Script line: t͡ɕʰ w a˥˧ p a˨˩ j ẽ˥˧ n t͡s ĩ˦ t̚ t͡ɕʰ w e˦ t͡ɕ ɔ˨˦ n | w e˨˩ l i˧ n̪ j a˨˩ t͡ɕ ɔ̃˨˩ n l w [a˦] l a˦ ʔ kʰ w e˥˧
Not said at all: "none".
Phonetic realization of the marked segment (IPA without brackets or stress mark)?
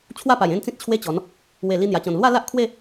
a˥˧